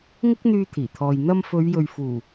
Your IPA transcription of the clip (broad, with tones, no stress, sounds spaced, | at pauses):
ŋ ɪ˥ k̚ n̪ yː˧ t̪ʰ iː˨˩ t̪ʰ ɔː˨ j n̪ ɐ˧ m f ɵ˨˧ ɥ j ɵ˨ ɥ f uː˨˩